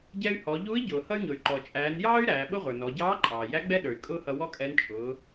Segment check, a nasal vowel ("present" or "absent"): absent